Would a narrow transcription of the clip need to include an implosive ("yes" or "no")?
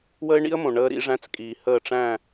no